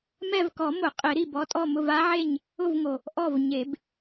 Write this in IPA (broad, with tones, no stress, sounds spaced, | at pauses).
m ɛ˦˨ v k ɔ˨˩˦ m ʊ˨˩˦ qʼ ɪ˨˩˦ ɾ i˩ b ɔ˦ tʼ ɔ˦˨ m ʊ˦˨ v a˦ ʕ e˦˨ ɲ | ʊ˦˨ v ŋ o˩ | ʔ ɔ˦˨ v ɲ e˨˩˦ b